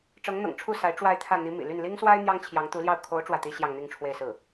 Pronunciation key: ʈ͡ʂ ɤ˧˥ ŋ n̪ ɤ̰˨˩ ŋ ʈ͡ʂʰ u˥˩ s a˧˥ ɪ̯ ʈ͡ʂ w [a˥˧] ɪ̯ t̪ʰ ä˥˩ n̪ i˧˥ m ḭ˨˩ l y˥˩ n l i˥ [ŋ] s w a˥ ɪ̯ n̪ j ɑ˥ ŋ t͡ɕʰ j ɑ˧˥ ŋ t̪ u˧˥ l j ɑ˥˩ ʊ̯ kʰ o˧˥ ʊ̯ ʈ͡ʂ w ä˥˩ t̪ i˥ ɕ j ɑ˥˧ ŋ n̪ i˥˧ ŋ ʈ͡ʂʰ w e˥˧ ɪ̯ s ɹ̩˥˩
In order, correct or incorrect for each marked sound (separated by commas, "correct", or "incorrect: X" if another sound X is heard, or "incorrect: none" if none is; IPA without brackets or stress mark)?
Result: correct, correct